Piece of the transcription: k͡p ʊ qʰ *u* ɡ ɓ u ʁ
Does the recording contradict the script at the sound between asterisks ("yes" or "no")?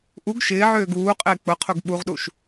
no